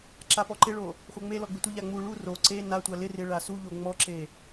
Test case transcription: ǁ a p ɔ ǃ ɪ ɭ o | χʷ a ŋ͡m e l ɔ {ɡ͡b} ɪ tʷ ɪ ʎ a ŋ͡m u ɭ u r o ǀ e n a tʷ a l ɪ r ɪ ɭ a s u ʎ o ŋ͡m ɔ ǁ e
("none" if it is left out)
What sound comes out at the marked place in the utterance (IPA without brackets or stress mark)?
ɡ͡b